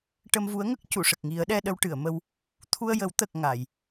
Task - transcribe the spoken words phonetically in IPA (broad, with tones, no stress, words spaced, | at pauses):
ʈə˧mvu˧˥ə̯ŋə˦˥k̚ cu˨˩˨ʂə˨˩k̚ŋi˨˩˦ə̯ɗɛ˧ ɗə˧wʈɨ˨˩˨ə̯mə˧w | t̪ʰu˧ə̯jə˨˩˦w t̪ə˨˩k̚ ŋa˨˩˨j